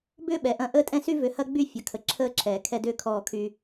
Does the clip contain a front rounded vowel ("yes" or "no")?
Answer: yes